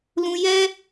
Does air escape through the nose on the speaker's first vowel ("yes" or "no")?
yes